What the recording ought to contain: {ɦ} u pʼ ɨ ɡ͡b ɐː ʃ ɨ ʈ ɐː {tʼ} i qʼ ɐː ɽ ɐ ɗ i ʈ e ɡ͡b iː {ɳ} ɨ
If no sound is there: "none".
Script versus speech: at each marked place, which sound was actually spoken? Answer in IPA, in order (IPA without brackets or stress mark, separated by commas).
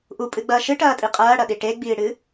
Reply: ʔ, tʼ, ɽ